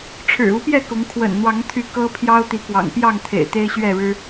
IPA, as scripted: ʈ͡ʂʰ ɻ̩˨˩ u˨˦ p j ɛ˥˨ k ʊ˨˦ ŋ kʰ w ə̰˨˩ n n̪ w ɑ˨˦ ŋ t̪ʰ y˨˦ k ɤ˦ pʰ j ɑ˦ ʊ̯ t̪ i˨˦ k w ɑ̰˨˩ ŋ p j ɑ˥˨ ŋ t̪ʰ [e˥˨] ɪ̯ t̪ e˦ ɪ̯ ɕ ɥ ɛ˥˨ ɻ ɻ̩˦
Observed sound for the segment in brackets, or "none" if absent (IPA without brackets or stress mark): ḛ˨˩